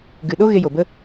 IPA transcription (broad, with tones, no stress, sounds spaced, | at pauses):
ɡ ɨ˨ ɗ o˦ ɣ e˧ j o˨ b ə˦